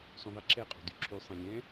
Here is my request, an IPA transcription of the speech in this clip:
sũðˤiǁʰɛqʼo̤ dyǁʰysˤɛ̃ lʲɛ̃

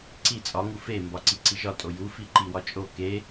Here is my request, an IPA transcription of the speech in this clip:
ǀi t͡sʼɒŋu fe mbɒǀiǀiʒɒ tʼoju fiǃiwɒt͡ʃʼo ke

